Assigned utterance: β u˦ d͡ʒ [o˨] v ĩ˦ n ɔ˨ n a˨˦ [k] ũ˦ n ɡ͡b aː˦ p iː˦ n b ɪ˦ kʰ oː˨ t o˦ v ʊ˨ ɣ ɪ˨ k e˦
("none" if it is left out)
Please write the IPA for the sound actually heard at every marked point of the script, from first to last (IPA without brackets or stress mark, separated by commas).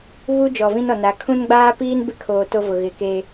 ɔ˨, kʰ